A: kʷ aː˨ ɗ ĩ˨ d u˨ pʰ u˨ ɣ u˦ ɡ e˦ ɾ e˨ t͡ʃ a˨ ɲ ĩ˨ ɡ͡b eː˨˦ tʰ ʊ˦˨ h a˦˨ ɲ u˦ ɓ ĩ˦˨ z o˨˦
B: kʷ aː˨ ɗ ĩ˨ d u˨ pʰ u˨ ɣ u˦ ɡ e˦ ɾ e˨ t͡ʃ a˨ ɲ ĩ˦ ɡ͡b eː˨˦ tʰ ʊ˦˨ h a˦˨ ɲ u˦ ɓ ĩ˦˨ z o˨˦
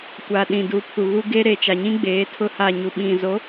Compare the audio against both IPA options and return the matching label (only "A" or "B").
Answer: B